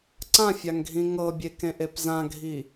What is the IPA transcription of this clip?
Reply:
ǀãfʲaŋɡʱĩ ŋɤbʲekẽʔep zãɡʱi

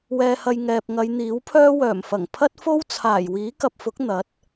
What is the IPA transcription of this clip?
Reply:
wɛː˨hɐ˨j ŋɛː˨p̚ŋɐ˨˧jn̪iː˨˥wpʰœː˥ wœː˨˩mfɐ˨˩ŋ pʰɐ˥t̚fo˥w t͡sʰaː˨˩j wiː˨˥kɐ˨p̚fʊ˨˥k̚ n̪ɐ˨˥t̚

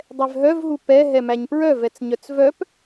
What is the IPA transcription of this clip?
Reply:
dˤɛvɦœvɦu pɛ ɦɛmæɲpɹœ vɛt͡sɲœt͡svœp

